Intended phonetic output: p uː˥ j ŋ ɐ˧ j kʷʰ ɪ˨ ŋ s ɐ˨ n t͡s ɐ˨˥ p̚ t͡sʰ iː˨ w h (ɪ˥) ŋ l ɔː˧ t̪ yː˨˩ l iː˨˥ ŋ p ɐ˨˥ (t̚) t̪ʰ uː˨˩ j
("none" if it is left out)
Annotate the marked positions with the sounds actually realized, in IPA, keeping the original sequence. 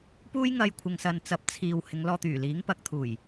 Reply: ɪ˨˧, k̚

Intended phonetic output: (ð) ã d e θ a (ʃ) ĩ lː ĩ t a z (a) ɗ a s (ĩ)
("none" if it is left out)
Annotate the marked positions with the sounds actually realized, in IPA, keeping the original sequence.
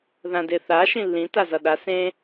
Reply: ð, ʃ, ʌ, ẽ

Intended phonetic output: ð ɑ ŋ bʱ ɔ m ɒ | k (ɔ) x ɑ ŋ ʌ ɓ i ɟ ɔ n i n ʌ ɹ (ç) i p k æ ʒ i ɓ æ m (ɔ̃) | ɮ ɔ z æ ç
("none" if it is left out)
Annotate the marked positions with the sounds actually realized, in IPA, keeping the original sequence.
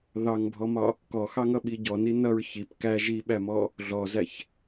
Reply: ɔ, ç, ɔ

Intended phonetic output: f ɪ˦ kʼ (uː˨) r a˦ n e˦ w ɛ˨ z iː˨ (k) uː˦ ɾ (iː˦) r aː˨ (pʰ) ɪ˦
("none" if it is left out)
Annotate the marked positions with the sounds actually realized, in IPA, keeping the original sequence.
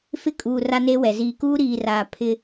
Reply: uː˨, k, iː˨, pʰ

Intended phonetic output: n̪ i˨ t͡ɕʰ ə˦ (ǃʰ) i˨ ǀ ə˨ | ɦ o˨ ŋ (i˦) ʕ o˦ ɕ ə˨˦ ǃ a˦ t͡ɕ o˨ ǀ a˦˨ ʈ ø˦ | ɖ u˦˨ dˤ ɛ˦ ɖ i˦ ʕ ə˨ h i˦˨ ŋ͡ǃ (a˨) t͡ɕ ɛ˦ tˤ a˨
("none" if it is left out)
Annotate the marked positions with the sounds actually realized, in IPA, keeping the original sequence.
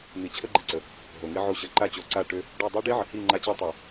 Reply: ɡ͡ǃ, i˦, a˦

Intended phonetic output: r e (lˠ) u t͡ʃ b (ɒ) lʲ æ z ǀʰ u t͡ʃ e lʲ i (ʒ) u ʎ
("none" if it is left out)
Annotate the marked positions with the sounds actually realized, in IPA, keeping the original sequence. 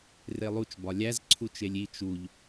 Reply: lˠ, ɒ, t͡ʃ

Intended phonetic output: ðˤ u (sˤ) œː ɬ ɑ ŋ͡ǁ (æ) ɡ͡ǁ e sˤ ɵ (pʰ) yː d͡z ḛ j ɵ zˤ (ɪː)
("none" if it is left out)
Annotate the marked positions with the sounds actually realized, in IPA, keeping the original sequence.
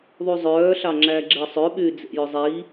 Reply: zˤ, æ, ɓ, iː

